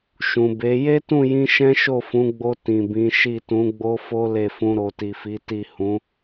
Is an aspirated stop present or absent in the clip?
absent